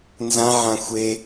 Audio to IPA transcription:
n z ã ʕ ã xʷ e

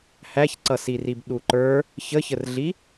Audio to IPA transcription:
h æ ç ǀ ʌ s i r i b ɗ u ǃ ə˞ | ç ə ç ə r ɮ i

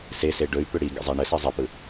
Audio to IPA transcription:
s e s e ɖ ɵ y̯ p ʏ ɽ i ɡ ə̰ zˤ e ɳ ə s i zˤ ə p ɯ

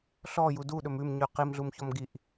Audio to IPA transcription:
ɬ ɔ j u d u ɗ ɵ m ʉ m ɲ ʉ q i m ɮ u m ç ɔ m ɡ i ʔ

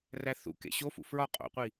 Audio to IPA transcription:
r æ θ ṵ k ḛ ɕ o f ṵ f ɹ ɒ qʼ o̰ qʷ i

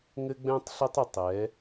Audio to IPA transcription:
ŋ ɘ˦ ɡ͡b ɛ̃˦ tˤ ɬ ə˦ tˤ ə˧ tˤ ɛ˨˦

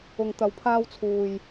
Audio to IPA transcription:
ʊ˨ ŋ t̪ ɐ˨ w pʰ aː˧ w t͡sʰ uː˨ j

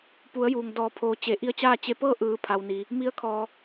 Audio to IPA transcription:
p u˩˧ ə̯ j uː˩ ŋ d ɔː˩˧ pʰ oː˩ t͡ɕ e˩˧ ʔ i˧˥ ə̯ t͡ɕ aː˥˨ t͡ɕ e˧ p ɤː˥˨ ʔ ɯː˩˧ pʰ a˩ w n iː˩ | m i˧˥ ə̯ kʰ ɔː˩

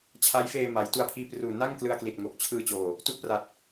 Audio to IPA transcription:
t͡ɕʰ a˦˥ j f eː˧ m a˩˦ j t u˧ a̯ pʰ iː˧ p r uː˨˩ n a˥˩ ŋ k l ɯ˧ a̯ k l i˨˩ t̚ ŋ oː˨˩ k̚ t͡ɕʰ ɯː˧ t͡ɕ oː˨˩ | t u˦˥ ʔ p r a˨˩ t̚

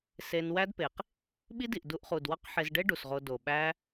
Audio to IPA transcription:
s e˧ n w æ˦ d p e˨ q | ɓ i˦ d i˨ ʔ d u˧ ʔ χ u˨ d w ɒ˦ q ħ e˧ z ɖ e˦ ɖ u˨ s ʁ o˧ d o˨ ɓ æ˦

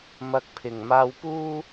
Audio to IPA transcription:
m ɐ˧ k̚ pʰ ɪ˨ ŋ m aː˧ w p uː˥

